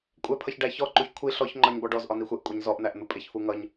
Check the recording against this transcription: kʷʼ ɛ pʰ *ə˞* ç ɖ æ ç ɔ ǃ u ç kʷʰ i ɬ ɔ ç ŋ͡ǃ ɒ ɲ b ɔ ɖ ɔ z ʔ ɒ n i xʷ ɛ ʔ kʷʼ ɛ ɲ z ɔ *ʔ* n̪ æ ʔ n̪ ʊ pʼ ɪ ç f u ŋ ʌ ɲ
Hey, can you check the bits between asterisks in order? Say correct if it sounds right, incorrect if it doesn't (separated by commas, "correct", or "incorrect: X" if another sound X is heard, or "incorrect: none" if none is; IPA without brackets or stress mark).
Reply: incorrect: ʌ, correct